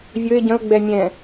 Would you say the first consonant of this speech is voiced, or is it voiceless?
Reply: voiced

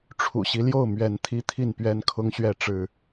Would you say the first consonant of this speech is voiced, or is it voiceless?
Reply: voiceless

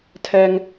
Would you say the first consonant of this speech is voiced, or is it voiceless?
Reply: voiceless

